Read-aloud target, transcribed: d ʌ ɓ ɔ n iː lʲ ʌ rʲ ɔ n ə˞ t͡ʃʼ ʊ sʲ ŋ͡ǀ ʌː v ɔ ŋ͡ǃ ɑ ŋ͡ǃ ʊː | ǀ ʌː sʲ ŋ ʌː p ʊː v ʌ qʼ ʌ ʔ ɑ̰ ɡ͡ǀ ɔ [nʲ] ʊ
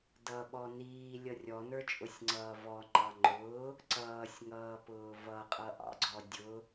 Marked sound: incorrect: dʲ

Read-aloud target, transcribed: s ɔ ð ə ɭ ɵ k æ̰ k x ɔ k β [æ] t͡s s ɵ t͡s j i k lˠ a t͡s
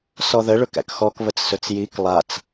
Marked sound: incorrect: ə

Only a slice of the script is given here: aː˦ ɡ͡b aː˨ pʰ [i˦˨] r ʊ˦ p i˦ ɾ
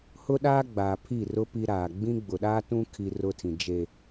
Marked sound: correct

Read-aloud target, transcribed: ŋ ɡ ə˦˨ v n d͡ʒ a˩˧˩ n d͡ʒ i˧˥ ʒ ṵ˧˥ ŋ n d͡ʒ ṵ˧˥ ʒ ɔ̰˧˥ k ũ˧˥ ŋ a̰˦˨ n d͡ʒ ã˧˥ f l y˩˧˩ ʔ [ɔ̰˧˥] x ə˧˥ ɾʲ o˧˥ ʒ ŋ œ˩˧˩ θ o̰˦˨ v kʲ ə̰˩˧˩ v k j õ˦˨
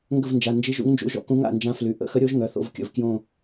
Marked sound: incorrect: ə̰˧˥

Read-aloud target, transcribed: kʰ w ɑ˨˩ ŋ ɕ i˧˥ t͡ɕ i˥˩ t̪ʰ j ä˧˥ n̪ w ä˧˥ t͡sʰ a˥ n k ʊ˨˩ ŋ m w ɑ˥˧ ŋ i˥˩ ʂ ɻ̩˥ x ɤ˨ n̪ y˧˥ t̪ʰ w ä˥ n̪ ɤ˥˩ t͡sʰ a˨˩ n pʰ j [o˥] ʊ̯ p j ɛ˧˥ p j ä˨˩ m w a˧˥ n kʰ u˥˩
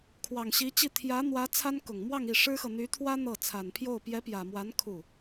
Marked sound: incorrect: o˥˩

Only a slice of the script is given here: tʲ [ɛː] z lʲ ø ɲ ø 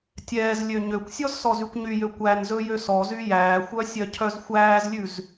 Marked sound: correct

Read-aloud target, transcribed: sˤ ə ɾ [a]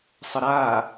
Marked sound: correct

